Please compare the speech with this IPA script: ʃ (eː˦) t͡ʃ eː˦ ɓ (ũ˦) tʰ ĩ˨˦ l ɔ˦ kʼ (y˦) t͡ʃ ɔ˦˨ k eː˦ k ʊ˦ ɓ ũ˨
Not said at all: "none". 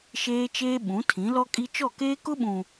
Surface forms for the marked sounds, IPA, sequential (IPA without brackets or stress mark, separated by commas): eː˦, ũ˨˦, i˦